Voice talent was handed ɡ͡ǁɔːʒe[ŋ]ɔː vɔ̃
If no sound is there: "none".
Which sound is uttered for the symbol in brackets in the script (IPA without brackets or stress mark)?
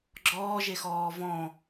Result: x